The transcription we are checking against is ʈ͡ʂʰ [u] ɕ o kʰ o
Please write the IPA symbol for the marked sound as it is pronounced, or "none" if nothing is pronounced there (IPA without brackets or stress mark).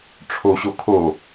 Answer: o